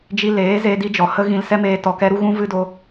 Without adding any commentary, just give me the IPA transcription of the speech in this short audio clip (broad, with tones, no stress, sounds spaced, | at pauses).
d͡ʒ i˧ l eː˨˦ z e˧ d i˦ d͡ʒ ɔ˨ h ə˦ ɣ ĩ˧ l s ɛ˦ m eː˧ t ɔ˨ k ɛ˦ ɾ u˦ ɣ ũ˦ v ɨ˦ d o˧